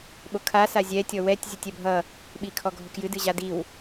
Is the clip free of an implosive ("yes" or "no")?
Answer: no